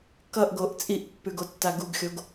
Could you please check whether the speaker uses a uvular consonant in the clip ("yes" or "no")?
no